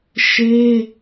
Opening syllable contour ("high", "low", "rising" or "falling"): high